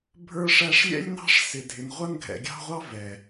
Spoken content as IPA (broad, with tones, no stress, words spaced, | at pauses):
bʱə˞˦ʂæ˦ʂlʲɛ̰˥lʲnɑ̤˥ʂ sɪ˨dʱɪ˨n ʁʷʌ˦nɡʱɛ̰˨ɡʲɑ̤˦ʁʷɑ˦ vɛ˩